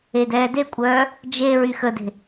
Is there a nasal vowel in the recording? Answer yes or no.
no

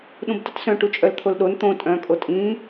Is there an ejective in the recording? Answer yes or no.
yes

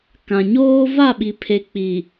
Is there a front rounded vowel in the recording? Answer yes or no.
no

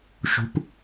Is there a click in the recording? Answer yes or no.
no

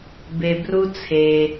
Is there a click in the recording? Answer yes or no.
no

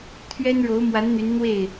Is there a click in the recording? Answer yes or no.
no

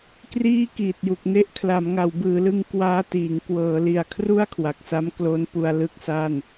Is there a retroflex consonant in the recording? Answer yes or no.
no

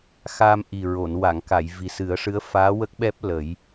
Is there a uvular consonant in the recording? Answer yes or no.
no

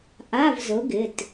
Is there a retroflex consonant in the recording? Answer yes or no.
no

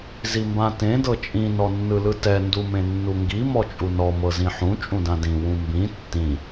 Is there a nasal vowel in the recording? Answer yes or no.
yes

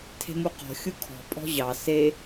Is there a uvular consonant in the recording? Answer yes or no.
yes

